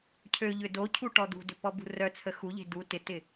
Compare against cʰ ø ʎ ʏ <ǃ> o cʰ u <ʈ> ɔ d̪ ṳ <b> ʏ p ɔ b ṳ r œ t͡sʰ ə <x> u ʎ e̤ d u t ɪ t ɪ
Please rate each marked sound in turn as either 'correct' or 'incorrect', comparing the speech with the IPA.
incorrect, correct, incorrect, correct

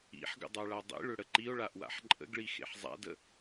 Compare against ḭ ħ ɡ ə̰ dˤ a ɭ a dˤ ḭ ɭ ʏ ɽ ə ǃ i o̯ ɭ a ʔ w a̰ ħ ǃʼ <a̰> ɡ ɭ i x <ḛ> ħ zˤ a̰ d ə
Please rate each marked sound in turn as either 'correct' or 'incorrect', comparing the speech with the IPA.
incorrect, correct

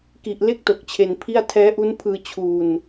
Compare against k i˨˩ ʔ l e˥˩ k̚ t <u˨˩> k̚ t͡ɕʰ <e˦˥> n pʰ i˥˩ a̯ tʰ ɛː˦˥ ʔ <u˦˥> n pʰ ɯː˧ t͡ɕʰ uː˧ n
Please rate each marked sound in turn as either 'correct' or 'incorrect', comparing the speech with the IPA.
incorrect, incorrect, correct

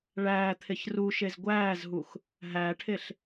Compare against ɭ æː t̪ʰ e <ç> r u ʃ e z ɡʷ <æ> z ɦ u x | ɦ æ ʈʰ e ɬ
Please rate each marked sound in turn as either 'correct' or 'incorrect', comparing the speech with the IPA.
correct, incorrect

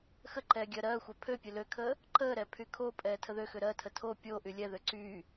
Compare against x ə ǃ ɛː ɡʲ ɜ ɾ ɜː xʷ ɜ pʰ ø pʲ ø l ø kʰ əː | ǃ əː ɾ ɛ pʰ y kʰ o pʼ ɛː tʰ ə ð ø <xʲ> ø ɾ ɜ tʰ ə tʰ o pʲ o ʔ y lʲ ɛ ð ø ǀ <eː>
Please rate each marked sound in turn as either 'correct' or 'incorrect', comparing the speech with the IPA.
incorrect, incorrect

